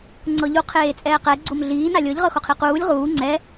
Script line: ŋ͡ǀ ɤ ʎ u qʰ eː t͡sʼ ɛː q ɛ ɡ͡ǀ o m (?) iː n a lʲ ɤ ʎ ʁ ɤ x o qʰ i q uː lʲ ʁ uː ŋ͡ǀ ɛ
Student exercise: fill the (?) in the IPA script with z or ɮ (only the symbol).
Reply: ɮ